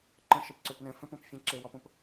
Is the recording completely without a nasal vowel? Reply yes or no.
no